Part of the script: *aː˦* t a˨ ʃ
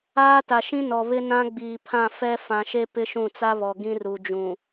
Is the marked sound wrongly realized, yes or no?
no